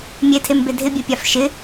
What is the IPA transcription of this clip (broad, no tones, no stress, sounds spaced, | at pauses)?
mʲ e tʰ e m b e dʱ ɪ bʲ ɛ pʲ a f ʃ ɪ